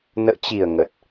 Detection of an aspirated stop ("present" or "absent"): absent